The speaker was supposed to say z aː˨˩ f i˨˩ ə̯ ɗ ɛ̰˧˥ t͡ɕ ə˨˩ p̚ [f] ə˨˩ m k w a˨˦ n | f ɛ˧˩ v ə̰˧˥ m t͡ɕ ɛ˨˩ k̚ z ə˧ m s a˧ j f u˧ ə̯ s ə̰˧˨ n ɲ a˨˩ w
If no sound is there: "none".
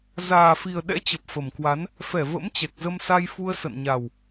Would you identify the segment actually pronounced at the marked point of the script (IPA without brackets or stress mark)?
f